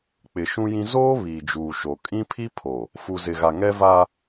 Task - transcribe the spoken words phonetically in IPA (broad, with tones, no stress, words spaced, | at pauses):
k͡pɪ˨ʃũ˦jĩ˦ zoː˦ βiː˨d͡ʒuː˨ʃo˨ kʼĩ˦pʰi˦pʰo˨ | fu˨zɪ˨ɣa˨ ŋɛ˦va˦